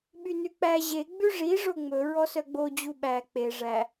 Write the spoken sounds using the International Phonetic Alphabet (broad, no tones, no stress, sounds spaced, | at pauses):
ɓ y n ʉ k͡p æ ʑ e ɡ͡b ʉ ʐ i ʐ o ŋ͡m ɵ ɹ ɔ s œ ɡ͡b o d͡ʑ u ɓ æ k͡p e ʐ æ